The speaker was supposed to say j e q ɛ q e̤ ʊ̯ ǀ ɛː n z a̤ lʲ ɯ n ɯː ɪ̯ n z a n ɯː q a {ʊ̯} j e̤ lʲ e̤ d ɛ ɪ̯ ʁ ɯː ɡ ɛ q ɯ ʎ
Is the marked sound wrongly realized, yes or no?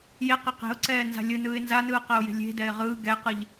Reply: no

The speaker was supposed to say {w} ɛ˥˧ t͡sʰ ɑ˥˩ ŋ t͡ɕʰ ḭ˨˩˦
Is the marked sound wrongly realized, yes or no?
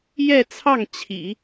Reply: yes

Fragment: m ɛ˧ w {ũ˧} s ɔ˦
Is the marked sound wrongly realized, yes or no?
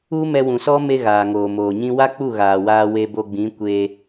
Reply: yes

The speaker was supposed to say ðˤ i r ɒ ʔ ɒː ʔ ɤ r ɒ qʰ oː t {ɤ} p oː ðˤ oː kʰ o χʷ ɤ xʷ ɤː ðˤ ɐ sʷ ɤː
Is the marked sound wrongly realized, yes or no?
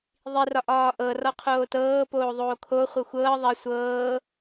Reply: yes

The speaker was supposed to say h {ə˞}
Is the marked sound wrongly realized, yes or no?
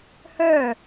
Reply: no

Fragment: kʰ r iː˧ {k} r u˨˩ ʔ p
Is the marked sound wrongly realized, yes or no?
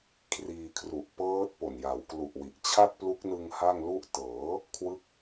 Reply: yes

